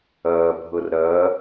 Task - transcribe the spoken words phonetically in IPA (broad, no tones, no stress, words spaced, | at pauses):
ɐːbʱɤr ɾɐ